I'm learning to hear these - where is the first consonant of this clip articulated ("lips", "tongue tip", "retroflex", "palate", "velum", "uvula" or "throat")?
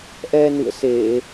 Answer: throat